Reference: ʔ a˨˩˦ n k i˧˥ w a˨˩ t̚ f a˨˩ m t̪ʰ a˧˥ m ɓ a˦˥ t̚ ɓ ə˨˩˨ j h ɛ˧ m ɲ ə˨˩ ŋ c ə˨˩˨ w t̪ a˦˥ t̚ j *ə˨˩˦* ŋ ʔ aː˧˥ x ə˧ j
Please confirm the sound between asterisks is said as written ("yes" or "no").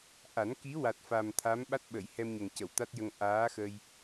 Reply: no